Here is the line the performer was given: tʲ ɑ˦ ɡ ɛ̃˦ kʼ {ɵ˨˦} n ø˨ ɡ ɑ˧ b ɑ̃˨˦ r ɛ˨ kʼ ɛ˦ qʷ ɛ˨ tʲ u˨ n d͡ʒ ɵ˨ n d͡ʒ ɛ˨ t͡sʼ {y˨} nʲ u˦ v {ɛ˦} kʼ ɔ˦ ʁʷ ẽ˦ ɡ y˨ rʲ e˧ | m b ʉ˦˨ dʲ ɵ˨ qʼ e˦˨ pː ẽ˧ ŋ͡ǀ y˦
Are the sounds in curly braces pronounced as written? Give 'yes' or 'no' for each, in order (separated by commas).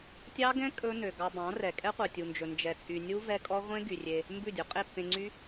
no, yes, yes